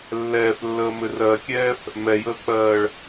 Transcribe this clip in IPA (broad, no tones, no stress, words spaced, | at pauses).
lːɛːflːəːmɘ rɜkʲɛːf | mɛjəːk͡pɜːɭ